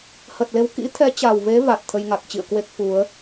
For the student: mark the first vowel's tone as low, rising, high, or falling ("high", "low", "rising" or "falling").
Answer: low